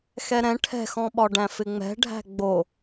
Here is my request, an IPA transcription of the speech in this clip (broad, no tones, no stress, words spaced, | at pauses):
xɛɾɛ̃ ʈʰɛ̤xɔ̃ɓɒɖæ̃ fɪŋ͡mɛ̤ ɖʱæ̤ɡ͡bo